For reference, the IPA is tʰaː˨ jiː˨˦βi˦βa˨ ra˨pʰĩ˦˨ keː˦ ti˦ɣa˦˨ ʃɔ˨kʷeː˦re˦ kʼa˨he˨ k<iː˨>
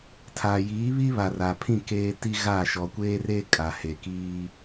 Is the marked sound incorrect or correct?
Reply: incorrect